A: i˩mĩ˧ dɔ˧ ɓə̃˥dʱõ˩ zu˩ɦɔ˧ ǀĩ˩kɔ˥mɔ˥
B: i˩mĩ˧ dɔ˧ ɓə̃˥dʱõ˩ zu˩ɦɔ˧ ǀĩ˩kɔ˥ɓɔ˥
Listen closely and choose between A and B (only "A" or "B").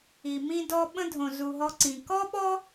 B